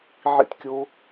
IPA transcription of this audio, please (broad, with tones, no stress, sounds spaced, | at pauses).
ʕ ḭ˦ t kʲ o˦